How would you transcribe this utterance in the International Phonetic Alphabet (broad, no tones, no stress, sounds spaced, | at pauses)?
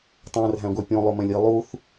tˤ æ̃ r ɦ æ̃ ɡʷ æ pʲ õ lˠ o m ɛ̃ lʲ i lˠ u θ